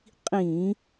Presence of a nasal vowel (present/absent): present